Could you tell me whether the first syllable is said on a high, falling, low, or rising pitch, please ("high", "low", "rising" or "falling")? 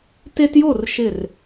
high